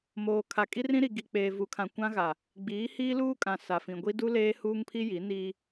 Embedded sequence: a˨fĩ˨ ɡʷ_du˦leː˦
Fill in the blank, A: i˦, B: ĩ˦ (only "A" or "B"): A